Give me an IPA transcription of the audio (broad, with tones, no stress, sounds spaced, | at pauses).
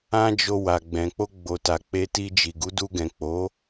ã˦ d͡ʒ o˧ w a˨ ɡ͡b ɛ̃˨ k͡p o˧ ɡ͡b o˨ t a˨ k͡p e˨ t i˧ d͡ʒ i˨ ɡ u˨˦ d u˧ ɡ ɛ̃˨ k͡p o˨˦